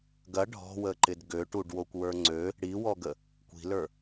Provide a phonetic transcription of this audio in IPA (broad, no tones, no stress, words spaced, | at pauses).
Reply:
ɡɐ ɖʱɔ̤wəǃɪd ɡøʈuɖwokʷwə˞ ŋ͡ǀø | ɽiwɔɡə | kʷi̤lə˞